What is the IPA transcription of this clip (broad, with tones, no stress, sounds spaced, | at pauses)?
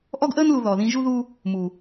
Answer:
ʔ ɔ˦ ɡ ʔ əː˦ n l u˨ ð ɔ˨ ð ĩ˧ ʒ u˦ ð u˦ | m u˨